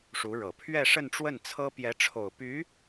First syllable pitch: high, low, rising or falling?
rising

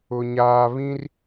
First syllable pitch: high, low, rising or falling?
low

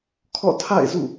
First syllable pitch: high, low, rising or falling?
falling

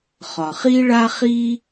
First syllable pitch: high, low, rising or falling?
low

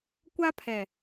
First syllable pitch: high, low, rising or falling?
high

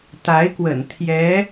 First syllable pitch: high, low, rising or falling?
rising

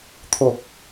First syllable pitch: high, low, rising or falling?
low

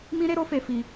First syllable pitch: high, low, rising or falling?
high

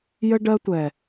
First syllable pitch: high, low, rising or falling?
high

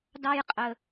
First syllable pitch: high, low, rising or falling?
high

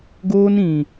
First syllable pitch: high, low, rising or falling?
high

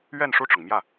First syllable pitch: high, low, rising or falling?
falling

